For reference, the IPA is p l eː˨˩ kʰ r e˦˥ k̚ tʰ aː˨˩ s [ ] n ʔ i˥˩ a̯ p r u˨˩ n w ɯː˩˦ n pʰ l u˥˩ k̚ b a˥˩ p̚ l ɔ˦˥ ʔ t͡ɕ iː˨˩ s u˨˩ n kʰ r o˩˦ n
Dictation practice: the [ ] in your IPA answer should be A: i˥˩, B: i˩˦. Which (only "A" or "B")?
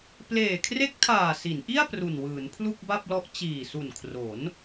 B